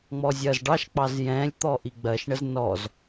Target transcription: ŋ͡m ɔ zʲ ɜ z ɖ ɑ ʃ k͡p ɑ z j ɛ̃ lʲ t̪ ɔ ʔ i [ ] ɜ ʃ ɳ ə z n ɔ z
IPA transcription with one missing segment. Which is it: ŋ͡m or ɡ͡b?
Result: ɡ͡b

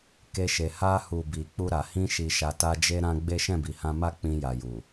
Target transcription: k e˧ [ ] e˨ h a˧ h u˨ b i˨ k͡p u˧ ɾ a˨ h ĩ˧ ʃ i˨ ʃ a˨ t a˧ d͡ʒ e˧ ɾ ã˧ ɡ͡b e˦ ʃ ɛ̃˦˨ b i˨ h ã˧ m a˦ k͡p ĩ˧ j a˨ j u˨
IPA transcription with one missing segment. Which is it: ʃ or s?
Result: ʃ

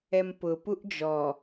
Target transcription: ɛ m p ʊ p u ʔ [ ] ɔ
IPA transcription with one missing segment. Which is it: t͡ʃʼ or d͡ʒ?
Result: d͡ʒ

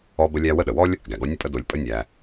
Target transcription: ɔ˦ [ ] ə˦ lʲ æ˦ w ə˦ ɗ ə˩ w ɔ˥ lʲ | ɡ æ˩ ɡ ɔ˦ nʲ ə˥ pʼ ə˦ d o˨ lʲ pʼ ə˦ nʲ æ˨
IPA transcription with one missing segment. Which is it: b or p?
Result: b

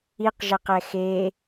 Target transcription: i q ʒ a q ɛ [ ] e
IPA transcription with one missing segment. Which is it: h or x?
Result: x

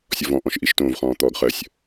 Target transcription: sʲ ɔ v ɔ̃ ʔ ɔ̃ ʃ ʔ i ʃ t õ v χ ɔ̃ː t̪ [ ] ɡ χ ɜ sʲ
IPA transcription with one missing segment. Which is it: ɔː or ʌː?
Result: ɔː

